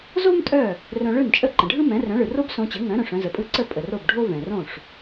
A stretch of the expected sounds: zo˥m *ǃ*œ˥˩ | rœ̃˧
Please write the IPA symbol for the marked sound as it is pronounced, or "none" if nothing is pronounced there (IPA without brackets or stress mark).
tʼ